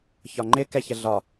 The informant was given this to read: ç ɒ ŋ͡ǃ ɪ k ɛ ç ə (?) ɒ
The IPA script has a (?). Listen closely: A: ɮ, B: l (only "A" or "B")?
A